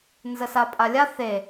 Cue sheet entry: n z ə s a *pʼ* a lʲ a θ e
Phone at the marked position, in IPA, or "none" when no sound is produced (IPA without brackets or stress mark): pʼ